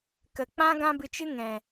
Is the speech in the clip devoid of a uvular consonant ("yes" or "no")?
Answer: yes